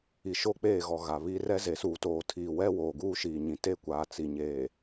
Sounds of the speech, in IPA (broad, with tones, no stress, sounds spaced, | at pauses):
i˨ ʃ o˦˨ k͡p eː˦˨ ɣ ɔ˨ ɣ a˨ β i˦ r ɛ˦ z e˨ s uː˨ t oː˨ tʰ iː˨ w ɛ˦ w oː˨ ɡ uː˦ ʃ iː˨ ɲ ĩ˨ t e˦˨ kʷ aː˨ t͡s i˨ ɲ eː˨